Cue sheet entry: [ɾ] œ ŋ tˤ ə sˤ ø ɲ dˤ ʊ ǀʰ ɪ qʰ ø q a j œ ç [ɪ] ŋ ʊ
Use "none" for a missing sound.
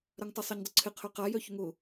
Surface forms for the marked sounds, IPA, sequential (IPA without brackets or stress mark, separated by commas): ɾ, ʏ